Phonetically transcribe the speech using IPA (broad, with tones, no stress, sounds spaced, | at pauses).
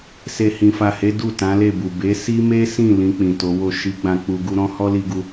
s e˨ h ĩ˨ f a˨ h e˨˦ d u˦˨ t ã˨˦ l e˦˨ b u˨ b e˨˦ s i˦ m e˦ s ĩ˦˨ l ĩ˧ k͡p ĩ˨ t o˨˦ w o˦˨ ʃ i˨˦ ɡ͡b ã˧ k͡p u˧ ɡ u˦ ɾ ɔ̃˦ h ɔ˦ l i˧ ɡ u˧